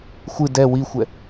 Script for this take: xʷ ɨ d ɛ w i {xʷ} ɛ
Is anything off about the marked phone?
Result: no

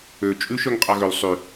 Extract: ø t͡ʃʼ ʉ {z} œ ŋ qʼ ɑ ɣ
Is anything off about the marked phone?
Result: yes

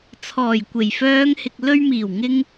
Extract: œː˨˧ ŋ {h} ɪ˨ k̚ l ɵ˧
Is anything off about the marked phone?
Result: no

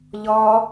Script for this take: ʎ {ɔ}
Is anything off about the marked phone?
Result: no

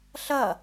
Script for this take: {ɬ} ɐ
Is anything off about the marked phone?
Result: no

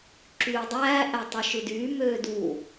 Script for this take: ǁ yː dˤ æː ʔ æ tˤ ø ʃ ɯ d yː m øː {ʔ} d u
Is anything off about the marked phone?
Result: yes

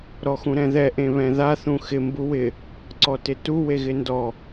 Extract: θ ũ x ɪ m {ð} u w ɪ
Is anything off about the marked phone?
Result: yes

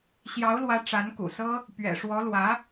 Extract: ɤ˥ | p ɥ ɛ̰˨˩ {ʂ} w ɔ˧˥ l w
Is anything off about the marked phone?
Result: no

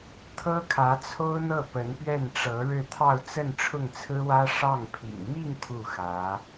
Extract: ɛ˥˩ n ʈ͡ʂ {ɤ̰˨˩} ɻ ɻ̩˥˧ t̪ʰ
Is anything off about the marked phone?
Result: yes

